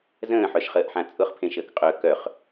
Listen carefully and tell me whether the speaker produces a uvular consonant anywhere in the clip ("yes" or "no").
yes